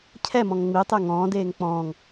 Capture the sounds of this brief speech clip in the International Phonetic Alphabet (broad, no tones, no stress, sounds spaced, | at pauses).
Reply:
cʰ ɛ m ɔ̃ ŋ ŋ͡m i tˤ e ŋ ɔ̃ː d eː ŋ k͡p ɔ̃ː ŋ